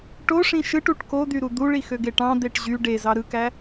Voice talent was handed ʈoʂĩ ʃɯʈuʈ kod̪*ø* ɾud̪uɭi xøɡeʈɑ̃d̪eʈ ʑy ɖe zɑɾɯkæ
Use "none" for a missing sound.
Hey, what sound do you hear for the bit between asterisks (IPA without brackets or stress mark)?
y